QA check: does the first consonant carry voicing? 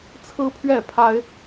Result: no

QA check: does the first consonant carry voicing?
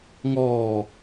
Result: yes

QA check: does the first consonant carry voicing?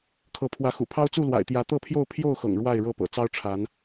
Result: no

